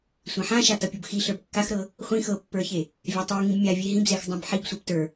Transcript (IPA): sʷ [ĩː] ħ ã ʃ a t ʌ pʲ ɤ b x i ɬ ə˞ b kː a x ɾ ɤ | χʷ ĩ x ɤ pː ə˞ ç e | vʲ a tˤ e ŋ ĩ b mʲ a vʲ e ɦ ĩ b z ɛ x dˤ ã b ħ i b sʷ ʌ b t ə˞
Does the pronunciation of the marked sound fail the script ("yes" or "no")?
yes